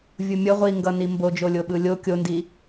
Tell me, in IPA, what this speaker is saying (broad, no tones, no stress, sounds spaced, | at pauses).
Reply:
vʲ u mʲ ʌ ʁʷ i ŋ ɡ ʌ n i m b o d͡ʒ o lʲ o ɓ ɯ lʲ o kʲ o n d i